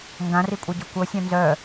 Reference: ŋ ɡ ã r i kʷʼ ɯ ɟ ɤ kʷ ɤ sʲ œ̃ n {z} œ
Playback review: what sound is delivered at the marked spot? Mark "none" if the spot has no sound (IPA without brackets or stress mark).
z